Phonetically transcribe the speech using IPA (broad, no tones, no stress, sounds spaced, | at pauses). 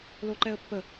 l o ǃ ɛ ə̯ pː ə